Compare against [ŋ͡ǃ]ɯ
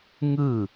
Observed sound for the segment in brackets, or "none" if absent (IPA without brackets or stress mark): ŋ